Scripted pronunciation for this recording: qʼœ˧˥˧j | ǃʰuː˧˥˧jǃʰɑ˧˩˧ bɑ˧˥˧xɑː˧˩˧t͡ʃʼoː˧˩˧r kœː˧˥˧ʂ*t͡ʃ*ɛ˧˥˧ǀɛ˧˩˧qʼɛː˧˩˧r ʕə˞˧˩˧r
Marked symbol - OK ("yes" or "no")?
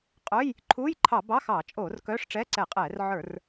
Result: no